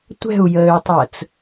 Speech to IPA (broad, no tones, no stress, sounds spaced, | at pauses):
tʷ ɛ̤ u̯ j əː y̯ tˤ əː t͡s